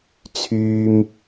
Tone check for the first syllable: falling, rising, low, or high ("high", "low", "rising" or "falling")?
high